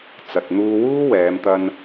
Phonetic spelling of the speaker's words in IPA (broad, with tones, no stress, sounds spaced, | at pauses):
t͡s ɐ˨ t̚ n̪ uː˧ w uː˥ w ɛː˨˧ m t̪ ɐ˧ n